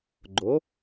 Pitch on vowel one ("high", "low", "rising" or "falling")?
rising